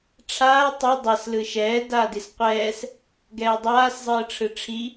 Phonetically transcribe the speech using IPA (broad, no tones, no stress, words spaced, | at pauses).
ʈ͡ʂʰaː tˤi dˤas lɯʃɛː daːdisqʷɛːs | ɡɛːdˤaːs zˤɯːʈ͡ʂʰɯʈ͡ʂʰi